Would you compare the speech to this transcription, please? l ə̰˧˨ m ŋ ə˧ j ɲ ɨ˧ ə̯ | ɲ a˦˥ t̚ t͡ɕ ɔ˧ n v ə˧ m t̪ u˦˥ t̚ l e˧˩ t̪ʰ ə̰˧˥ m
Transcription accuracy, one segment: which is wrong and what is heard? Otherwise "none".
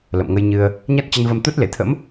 ɔ˧ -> ə˧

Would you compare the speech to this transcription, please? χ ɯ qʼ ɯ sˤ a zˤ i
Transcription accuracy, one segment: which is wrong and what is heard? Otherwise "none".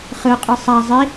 none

